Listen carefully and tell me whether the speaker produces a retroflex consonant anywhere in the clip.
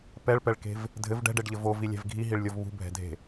yes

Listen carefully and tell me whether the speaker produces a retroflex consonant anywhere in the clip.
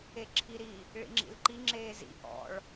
yes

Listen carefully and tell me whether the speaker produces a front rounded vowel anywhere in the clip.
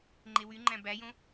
yes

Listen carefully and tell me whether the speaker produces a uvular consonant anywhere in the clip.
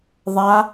no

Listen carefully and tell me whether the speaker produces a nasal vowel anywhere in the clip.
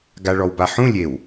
yes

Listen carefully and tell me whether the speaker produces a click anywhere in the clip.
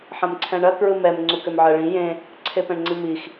yes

